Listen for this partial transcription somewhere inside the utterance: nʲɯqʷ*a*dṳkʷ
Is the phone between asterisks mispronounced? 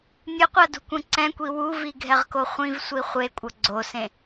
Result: no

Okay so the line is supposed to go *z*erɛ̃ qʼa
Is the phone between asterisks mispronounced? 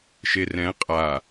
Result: yes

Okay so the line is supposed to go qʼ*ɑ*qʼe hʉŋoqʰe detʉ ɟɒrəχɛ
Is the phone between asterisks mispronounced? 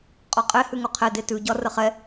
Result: yes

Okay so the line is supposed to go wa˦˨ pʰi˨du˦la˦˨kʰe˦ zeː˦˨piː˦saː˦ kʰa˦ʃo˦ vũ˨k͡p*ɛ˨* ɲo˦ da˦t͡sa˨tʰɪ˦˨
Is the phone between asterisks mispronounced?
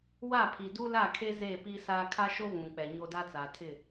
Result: no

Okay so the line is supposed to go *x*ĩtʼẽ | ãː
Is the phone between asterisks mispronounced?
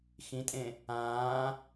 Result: no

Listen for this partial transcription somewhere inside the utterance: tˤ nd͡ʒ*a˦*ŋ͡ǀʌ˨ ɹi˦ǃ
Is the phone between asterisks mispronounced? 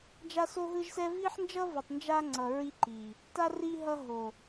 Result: no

